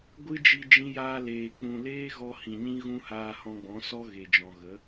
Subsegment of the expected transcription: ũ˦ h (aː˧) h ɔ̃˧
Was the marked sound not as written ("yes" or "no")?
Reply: no